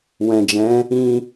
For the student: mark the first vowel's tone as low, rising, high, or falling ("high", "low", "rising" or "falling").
low